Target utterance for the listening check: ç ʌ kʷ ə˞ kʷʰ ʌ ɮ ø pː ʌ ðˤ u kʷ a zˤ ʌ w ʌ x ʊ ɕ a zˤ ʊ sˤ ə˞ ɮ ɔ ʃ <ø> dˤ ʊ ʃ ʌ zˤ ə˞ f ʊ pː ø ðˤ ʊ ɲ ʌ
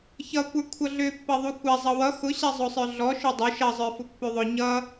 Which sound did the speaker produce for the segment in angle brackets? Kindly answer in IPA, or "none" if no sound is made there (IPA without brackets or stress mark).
ø